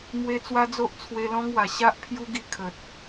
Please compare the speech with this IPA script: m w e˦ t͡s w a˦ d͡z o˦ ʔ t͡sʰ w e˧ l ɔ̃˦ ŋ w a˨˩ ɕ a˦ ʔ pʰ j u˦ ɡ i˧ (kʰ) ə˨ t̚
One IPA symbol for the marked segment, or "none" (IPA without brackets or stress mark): kʰ